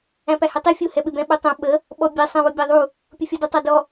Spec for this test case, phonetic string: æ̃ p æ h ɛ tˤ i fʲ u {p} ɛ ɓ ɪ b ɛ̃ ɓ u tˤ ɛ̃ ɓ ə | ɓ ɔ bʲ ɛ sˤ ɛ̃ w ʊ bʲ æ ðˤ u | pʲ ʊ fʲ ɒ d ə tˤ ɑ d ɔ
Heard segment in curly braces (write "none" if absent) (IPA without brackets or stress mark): h